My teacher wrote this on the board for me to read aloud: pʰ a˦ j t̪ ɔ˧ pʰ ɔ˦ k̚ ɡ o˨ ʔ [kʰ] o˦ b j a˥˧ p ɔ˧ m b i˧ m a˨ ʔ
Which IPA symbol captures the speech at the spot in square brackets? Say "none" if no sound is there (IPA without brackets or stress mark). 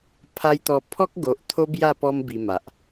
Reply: t̪ʰ